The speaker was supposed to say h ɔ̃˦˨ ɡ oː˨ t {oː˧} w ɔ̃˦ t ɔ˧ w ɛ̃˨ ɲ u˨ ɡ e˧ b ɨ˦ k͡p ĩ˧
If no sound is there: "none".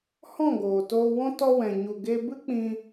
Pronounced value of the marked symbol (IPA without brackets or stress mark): oː˧